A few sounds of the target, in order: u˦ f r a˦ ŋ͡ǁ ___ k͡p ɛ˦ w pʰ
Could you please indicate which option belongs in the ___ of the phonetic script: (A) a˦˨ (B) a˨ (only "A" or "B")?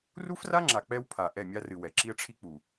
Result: B